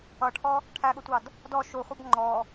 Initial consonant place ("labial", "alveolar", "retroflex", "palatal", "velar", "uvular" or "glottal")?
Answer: retroflex